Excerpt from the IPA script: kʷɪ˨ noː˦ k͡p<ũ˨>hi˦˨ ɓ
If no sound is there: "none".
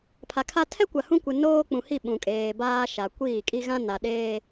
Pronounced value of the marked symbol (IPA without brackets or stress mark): ũ˨